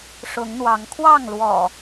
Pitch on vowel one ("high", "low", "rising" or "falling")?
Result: rising